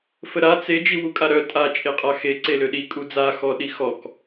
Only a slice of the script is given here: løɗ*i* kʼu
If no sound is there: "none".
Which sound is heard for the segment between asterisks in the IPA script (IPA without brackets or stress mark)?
i